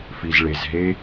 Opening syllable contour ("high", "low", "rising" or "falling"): low